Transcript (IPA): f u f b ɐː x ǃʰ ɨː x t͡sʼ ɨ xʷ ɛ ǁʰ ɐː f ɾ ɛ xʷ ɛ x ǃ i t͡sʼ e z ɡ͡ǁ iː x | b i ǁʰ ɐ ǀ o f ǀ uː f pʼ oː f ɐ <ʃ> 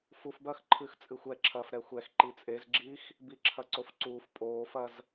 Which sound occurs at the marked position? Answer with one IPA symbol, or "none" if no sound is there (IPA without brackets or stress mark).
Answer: z